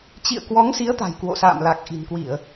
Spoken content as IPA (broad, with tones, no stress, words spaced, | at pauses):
t͡ɕḭ˧˨ə̯kwɔ˨˦ŋsi˨˦ə̯ t̪a̤˨˩jkwo̰˧˨sa̰ː˧˨mla˨˩k̚ ʔi̤˨˩nkwi˧˩˨ə̯